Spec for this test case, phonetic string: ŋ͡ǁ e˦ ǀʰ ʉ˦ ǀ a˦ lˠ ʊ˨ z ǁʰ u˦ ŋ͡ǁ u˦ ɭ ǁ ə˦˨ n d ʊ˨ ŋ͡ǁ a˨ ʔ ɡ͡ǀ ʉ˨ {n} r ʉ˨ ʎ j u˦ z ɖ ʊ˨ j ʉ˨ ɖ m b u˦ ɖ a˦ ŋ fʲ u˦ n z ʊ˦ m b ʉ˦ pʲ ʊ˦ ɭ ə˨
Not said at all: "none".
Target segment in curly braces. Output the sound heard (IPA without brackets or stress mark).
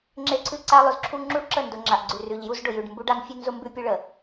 none